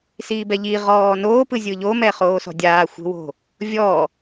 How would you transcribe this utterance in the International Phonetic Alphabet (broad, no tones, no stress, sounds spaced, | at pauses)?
s iː b ɛ ʎ i ʁ ɔː n oː p ɯ zʲ ɯ ʎ o m ɛ χ oː s ɔ̤ dʲ aː xʷ e̤ w o̤ | vʲ ɔː